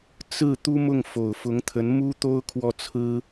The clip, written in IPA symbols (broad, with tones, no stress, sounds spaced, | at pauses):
t͡s ɹ̩˥˩ t̪ u˥ m ʊ˥˩ ŋ f o˨˩ ʊ̯ f ʊ˧˥ ŋ t̪ʰ ə˧˥ n m u˥ t̪ o˥ ʊ̯ kʰ w ɔ˥˩ t͡sʰ ɹ̩˥